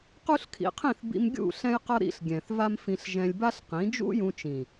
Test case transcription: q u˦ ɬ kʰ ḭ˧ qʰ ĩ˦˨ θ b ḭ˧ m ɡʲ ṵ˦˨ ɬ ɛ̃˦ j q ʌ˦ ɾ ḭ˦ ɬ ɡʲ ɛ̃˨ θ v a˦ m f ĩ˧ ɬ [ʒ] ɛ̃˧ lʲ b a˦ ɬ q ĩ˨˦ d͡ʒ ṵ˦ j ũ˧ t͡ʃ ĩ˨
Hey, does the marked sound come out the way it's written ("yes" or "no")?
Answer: yes